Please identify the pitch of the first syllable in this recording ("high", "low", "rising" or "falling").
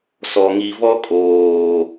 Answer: low